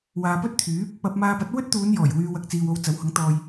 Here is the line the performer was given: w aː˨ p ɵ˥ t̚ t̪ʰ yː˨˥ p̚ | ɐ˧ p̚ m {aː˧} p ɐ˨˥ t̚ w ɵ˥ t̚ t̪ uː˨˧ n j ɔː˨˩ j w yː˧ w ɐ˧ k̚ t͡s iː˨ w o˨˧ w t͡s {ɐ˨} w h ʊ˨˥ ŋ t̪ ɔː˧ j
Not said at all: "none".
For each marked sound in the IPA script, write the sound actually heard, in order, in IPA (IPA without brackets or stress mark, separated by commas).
aː˧, ɐ˨˥